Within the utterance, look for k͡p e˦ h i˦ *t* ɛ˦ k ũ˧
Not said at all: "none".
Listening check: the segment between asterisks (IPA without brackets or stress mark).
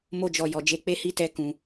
t